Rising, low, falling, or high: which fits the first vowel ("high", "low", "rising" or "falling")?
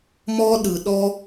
high